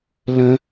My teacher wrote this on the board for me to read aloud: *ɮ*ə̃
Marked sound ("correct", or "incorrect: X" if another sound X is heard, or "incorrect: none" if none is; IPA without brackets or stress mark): incorrect: l